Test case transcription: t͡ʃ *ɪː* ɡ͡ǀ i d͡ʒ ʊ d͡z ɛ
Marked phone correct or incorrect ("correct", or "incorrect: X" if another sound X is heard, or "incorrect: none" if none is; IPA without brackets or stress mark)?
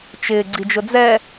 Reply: correct